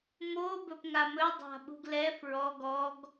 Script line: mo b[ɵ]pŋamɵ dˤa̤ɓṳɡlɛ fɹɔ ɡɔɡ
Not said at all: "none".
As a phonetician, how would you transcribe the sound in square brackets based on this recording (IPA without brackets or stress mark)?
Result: ɵ